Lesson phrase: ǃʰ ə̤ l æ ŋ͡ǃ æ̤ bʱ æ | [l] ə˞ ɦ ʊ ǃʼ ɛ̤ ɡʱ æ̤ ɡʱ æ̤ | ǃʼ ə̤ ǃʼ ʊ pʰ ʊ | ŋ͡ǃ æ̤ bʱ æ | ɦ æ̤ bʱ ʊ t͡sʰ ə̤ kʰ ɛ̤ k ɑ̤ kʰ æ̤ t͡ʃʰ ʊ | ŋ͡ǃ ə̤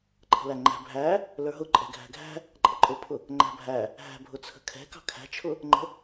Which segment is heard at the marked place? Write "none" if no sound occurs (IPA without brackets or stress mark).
l